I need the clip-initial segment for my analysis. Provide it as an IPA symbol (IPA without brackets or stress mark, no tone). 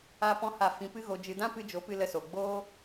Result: a